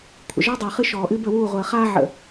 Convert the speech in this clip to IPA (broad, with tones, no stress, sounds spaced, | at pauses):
kʷʰ ə̰˨ ʒ ɔ˦ dˤ əː˨ χ ɨ˦ ʃ ɔː˨ ʔ ɨ˦ b ə˦˨ w uː˦˨ ʁʷ əː˨ χ aː˦ ʕ ə̰˨